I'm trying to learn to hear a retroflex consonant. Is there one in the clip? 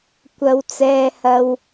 no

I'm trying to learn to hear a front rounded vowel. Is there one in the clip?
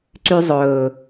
yes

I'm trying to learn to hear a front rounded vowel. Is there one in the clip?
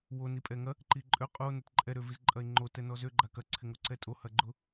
yes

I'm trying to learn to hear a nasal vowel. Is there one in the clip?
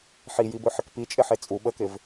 no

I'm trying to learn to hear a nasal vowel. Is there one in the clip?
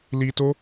no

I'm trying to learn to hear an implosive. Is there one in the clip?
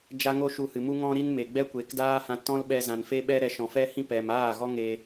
yes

